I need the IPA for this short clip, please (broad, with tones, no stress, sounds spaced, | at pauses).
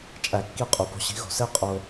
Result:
t͡ʃʼ æ˧ kː i˥˧ qʼ u˨˥ p o̤˦˥ ɕ i̤˨˥ ɣ o̤˧˩˧ s e˦˥ qʼ o˧